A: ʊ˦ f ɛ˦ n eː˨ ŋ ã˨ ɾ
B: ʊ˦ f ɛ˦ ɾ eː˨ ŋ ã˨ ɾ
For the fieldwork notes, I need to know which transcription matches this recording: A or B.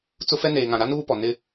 A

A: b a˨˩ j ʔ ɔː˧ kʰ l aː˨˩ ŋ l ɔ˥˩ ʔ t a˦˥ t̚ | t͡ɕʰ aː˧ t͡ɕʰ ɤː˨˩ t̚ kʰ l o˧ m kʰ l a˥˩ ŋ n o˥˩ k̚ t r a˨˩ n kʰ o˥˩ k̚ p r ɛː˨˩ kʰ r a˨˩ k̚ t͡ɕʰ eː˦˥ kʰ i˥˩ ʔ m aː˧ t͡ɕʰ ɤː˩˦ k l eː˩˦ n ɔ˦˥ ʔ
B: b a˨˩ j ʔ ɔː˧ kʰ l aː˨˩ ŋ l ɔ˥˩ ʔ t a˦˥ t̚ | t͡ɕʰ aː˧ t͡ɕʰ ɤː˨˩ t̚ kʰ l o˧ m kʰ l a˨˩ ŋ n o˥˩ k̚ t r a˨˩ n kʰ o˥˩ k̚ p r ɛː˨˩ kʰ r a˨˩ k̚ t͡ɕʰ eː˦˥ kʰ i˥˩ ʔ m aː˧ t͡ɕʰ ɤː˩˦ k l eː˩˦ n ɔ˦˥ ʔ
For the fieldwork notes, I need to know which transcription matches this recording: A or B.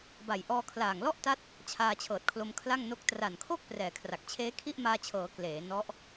A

